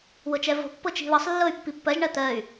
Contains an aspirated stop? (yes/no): no